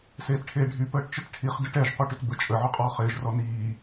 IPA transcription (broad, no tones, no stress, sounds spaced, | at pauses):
s eː t ʈʰ eː ɖʱ y p əː ʈ t͡ʃ ə t ʈʰ i χ d ʏ ʈ ɛ ʒ qʷ e ʈ ʏ t b ə t͡ʃʼ ə ʕ ʏ qʼ ɔː χ ɪː ʒ r ɔ n iː